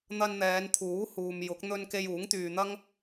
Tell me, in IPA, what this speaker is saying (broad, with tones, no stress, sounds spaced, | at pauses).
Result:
n̪ ɐ˧ n n̪ ɛː˨˧ n t̪ʰ uː˨˥ h uː˨ m j ʊ˨˥ k̚ n̪ ɵ˧ n k e˧ j uː˨˥ ŋ t̪ yː˨ n̪ ɐ˥ ŋ